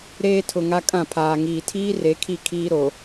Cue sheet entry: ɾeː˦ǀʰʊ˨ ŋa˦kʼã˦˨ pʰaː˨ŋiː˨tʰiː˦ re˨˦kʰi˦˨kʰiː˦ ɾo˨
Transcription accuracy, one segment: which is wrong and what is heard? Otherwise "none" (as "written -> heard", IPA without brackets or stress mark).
ǀʰ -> tʰ